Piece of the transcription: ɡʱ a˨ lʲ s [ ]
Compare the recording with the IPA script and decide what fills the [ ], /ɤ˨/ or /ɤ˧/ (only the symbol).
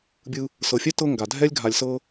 ɤ˧